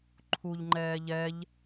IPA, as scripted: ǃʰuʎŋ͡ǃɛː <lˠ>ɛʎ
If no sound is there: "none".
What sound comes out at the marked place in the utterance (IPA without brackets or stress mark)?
ʎ